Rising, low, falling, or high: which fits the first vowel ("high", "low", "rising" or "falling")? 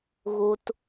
low